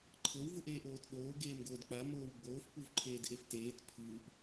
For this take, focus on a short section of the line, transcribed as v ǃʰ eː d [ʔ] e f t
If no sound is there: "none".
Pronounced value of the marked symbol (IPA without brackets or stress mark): ʔ